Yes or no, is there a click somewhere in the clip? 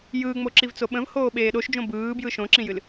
yes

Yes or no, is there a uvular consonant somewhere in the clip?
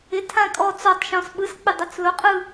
yes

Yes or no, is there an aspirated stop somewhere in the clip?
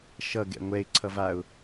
yes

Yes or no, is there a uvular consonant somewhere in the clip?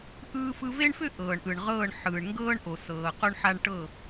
yes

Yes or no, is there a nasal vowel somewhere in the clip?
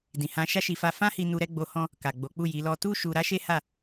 yes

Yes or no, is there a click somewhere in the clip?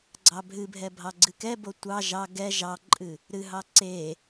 yes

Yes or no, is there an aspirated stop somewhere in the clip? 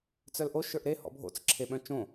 yes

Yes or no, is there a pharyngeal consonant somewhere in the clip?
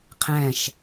no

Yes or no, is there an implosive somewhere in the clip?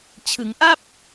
no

